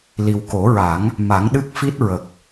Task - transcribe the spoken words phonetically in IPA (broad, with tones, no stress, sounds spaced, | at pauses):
l i˨˩ w k o˨˩˦ ɹ a˨˩˦ ŋ | m a˨˩˦ ŋ ɗ ɨ˦˥ k̚ f i˦˥ t̚ ɹ ə˨˩ k̚